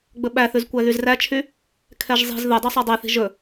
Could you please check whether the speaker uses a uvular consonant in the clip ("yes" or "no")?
no